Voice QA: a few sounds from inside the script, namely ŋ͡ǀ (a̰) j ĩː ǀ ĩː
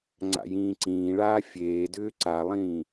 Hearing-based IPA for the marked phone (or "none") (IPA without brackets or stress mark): a̰